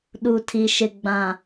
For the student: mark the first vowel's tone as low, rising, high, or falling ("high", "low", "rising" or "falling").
low